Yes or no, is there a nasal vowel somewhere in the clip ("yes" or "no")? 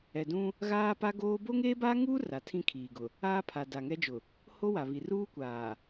yes